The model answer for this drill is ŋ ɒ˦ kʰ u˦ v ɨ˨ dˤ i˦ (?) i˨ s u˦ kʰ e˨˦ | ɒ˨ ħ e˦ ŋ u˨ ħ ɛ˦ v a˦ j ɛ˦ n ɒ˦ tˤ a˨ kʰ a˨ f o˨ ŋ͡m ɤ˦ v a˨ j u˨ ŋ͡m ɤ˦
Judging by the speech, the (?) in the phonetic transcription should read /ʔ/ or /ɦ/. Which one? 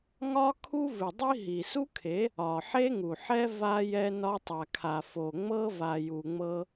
ɦ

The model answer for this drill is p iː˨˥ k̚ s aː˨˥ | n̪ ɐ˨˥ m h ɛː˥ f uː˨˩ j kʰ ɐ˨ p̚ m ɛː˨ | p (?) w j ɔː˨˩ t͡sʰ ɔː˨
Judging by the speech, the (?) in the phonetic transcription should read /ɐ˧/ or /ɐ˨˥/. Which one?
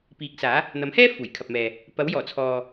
ɐ˨˥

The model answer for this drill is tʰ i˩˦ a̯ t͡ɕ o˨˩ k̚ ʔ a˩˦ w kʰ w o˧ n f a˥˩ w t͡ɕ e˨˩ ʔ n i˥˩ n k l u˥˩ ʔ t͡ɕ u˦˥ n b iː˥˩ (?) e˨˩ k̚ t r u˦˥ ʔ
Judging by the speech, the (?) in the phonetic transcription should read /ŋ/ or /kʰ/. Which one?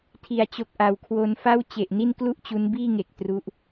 ŋ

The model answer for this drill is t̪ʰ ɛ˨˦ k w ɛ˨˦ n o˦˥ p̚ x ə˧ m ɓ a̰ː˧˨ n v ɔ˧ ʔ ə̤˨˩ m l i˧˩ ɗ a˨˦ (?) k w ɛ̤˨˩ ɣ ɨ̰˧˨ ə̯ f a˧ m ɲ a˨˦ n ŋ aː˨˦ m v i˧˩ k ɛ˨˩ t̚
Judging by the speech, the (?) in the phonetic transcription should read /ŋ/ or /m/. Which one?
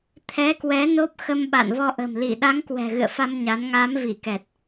ŋ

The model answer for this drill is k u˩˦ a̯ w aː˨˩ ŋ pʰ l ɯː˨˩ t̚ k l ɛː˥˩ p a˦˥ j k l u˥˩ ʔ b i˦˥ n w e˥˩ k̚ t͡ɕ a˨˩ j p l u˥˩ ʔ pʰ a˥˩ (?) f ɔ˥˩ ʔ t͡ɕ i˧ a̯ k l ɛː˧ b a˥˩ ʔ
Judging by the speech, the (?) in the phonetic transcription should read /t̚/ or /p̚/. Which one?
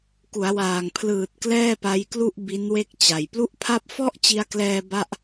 p̚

